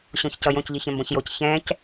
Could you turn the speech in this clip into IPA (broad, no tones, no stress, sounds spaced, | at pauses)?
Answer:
ɕ õ ç c ʌ j õ c ʎ i ç ɛ̃ m b õ ç j o c ç ɛ̃ c